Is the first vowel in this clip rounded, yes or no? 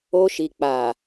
yes